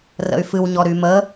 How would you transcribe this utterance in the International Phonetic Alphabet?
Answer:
rə̰y̯fɨwɲɔ ɾymə

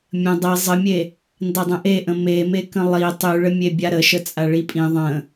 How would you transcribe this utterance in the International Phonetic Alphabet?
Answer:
mʲə̃ dˤe zˤəmʲe | ndadˤə̃ʔeʔə̃ memekə̃ lˠi tˤyɭəmʲebʲa ɾəʃə t͡sʼaɭipʼĩ ðˤə̃

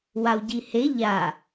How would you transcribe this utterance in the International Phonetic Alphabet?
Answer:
wawɟihe ʎa

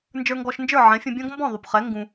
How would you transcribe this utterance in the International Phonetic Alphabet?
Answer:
nd͡ʒə˞˧ŋɡɔ˧ʃnd͡ʒə˞˦˨ ʕɛ̃˨˦fʲũ˧bʲɔ̃˦ɡ mbɔ̃˦˨ðˤu˨pχɛ˨˦ ŋɡũ˧

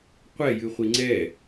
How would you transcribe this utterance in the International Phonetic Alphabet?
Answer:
qʷɛjɨχʷi ŋ͡ǀɛ

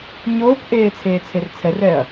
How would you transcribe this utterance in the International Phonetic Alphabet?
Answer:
ɲoːkʔeː t͡sʰeːt͡sʰert͡sʰɛrɛːɐ̯

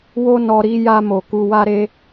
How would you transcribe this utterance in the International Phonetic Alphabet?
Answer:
wo˦nɔ˧ ɾi˧ ja˧mo˨ ku˧wa˦ ɾe˦

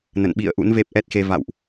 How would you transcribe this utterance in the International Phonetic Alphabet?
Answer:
nə̰˧˨nɓḭ˧˨ə̯ʔṵ˧˥n ve˦˥p̚ʔɛ˦˥t̚xe˧ va̰˧˨wʔ

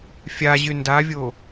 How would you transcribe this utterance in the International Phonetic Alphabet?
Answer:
fʲaʑy ndavʲo

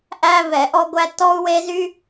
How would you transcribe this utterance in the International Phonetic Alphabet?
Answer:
ʔæ˥vɛ˧˩˧ʔɔ˥ɡʷæ˥ tɔ˥u̯we˥zy˥

